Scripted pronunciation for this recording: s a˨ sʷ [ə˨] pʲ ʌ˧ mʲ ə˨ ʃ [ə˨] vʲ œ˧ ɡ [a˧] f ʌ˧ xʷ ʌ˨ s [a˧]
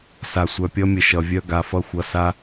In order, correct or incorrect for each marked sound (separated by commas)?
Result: incorrect, incorrect, incorrect, correct